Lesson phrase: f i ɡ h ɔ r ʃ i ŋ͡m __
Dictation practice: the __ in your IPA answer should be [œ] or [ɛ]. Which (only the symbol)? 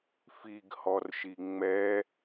ɛ